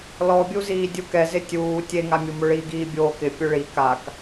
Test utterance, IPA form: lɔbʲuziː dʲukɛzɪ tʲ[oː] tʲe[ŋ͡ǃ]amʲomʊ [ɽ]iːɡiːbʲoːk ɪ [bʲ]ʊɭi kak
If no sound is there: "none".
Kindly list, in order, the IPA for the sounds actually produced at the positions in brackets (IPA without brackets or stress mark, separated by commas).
uː, ŋ, ɭ, pʲ